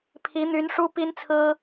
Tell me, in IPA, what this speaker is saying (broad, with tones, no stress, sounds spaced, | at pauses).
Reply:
pʰ i˧˥ n̪ y˧˥ n ʂ u˥ p i˥ n t͡sʰ ɹ̩˥